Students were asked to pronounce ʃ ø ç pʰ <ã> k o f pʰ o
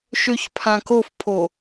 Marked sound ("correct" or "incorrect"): correct